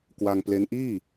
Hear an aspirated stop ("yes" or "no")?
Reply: no